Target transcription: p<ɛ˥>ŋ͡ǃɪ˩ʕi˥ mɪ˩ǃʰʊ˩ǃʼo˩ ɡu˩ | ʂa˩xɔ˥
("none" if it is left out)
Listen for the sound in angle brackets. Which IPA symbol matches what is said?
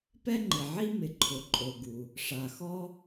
ɛ˥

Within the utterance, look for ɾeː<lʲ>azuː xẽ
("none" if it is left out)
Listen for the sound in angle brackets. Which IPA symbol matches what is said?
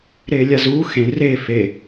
lʲ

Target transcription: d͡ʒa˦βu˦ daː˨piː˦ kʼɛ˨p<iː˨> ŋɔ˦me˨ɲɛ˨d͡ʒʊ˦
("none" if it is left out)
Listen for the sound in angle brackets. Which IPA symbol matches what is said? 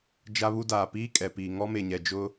iː˨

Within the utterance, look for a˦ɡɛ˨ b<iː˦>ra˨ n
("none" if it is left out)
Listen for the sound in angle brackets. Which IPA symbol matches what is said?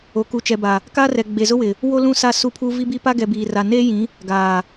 iː˨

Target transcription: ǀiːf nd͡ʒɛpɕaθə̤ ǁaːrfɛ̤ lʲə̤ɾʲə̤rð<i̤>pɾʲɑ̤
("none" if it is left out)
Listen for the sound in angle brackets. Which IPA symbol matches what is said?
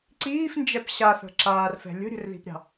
i̤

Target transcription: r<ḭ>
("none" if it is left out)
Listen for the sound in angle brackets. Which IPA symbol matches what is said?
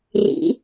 ḭ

